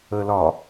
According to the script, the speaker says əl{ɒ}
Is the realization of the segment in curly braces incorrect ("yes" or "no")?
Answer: no